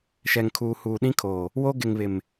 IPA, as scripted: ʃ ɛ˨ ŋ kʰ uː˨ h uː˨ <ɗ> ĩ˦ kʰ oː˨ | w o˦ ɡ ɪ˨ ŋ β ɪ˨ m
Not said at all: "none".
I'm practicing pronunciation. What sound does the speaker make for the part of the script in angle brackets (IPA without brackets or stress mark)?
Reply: ɗ